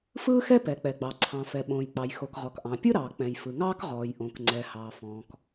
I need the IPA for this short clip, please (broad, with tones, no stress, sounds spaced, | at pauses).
f ɯː˥ x ɛ˥ p ɛ˩ k͡p ɛ˩ ɡ͡b ɑ˩ ǀʰ ɑ̃˩ f ɛ˩ ɓ õː˩ j k͡p ɑ˩ j x o˩ k ʁ ɔ˩ k ʔ ɑ̃˩ pʲ ɯ˥ ɾ ɑː˩ k͡p ɛ̃˩ j f ɯ˩ ŋ ɑː˥ k ʁ ɔː˩ j ʔ õ˩ k ŋ͡ǀ ɛ˩ h ɑː˩ f ɔ̃ː˩ k